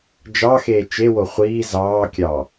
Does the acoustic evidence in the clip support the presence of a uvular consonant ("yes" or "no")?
yes